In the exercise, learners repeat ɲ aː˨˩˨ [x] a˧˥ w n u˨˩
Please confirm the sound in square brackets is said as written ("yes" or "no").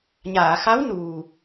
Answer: yes